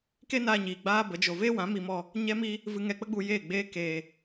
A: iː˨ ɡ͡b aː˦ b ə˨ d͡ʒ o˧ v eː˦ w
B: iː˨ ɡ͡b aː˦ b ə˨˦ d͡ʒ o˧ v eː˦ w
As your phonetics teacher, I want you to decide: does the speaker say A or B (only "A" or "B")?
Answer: B